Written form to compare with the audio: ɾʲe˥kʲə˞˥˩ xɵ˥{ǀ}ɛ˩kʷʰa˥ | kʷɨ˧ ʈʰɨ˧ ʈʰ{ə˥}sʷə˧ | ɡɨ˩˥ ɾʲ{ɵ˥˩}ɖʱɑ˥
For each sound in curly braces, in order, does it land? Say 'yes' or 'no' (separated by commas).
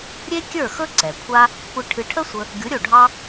yes, yes, no